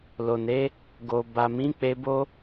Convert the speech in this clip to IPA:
l o˨ n e˨˦ | ɡ o˨ b a˨ m ĩ˨˦ k͡p e˧ b o˦

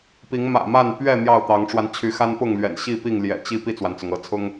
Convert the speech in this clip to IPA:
p i˨˦ ŋ m ä̰˨˩ m a˥˨ n p ɥ ɛ˥˨ n̪ j ɑ˥˨ ʊ̯ t̪ ɑ˨˦ ŋ ʈ͡ʂ w a˧ n t͡ɕʰ y˨˦ x a˦ n p ʊ˥˨ ŋ l ɥ ɛ̰˨˩ n ɕ i˥˨ p i˥˨ ŋ l j ɛ̰˨˩ t͡ɕ i˥˨ p i˥˨ t͡s w a˩ n t͡s ʊ˩ ŋ ɤ˨˦ t͡sʰ ʊ˦ ŋ

